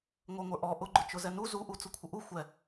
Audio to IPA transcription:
ŋʷ ə˞ ŋʷ ə˞ ʔ ɔ ʔ ʊ ɡ͡ǃ ʊ t͡ʃ ʊ z ɛ n u z u ʔ u t͡s ʊ kʷʰ ə ʔ u xʷ ɛ

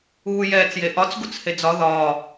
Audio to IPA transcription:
uː j ɛː t͡s j e ʔ ɒ t͡s ɡ u t͡s h e d͡z ɒ ð ɒː

